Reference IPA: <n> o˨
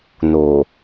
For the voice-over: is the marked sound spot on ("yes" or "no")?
yes